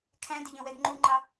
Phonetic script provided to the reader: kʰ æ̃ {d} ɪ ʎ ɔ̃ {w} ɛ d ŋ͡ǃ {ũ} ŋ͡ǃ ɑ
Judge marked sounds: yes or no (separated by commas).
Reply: yes, yes, no